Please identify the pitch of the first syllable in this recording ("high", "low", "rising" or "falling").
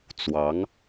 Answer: rising